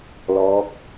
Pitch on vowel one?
rising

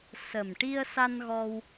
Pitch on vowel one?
low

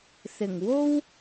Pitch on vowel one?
low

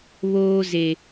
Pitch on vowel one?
high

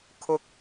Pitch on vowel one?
high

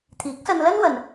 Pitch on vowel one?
rising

